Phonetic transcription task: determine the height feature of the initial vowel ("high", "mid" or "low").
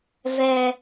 mid